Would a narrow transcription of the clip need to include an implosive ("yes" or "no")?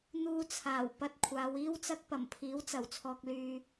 no